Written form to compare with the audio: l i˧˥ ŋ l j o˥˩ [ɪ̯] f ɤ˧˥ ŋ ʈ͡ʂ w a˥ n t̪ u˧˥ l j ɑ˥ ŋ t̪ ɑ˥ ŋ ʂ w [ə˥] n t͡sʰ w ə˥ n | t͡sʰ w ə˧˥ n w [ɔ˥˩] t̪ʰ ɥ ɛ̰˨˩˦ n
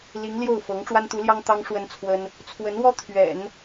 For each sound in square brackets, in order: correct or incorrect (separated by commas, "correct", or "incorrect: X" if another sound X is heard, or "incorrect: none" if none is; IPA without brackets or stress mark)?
incorrect: ʊ̯, correct, incorrect: ɔ˥